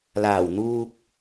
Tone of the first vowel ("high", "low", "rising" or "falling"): low